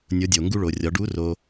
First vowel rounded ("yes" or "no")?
yes